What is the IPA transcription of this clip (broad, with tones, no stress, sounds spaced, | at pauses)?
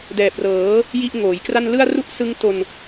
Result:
d ɛː˨˩ p̚ r ɤː˩˦ | j i˦˥ ʔ ŋ oː˩˦ j k r a˥˩ n l ɯ˥˩ a̯ r u˥˩ ʔ s ɯ˦˥ ŋ t o˧ n